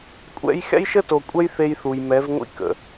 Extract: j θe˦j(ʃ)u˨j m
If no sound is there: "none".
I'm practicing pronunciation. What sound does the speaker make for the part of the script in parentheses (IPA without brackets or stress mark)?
θ